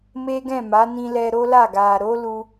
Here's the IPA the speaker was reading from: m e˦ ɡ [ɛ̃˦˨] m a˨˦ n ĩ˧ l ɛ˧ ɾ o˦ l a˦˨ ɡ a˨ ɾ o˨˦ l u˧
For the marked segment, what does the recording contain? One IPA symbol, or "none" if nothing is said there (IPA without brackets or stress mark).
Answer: ɛ̃˦˨